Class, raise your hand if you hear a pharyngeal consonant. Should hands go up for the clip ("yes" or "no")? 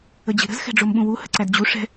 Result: no